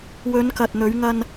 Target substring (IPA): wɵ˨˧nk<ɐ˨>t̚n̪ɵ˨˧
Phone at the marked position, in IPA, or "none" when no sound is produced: ɐ˨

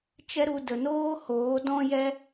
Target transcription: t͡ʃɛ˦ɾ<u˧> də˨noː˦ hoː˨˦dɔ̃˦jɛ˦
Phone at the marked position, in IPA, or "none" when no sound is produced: u˧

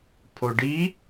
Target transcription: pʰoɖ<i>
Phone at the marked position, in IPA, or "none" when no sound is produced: i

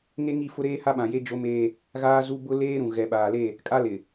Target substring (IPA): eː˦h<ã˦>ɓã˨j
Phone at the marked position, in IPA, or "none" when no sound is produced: a˦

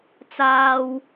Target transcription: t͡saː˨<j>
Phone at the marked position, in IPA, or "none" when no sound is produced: w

